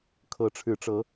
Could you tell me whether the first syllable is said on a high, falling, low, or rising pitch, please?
rising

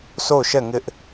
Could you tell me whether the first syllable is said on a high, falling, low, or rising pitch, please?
falling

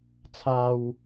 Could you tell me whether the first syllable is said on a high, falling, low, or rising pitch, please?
low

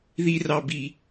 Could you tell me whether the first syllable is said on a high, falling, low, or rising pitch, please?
high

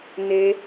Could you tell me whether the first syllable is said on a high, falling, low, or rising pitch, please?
high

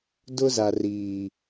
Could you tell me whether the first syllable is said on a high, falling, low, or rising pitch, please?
high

